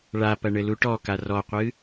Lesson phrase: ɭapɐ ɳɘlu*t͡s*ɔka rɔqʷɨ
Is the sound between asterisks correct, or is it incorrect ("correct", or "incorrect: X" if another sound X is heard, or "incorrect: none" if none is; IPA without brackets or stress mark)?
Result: incorrect: ʈ